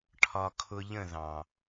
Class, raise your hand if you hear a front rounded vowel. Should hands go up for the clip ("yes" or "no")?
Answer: no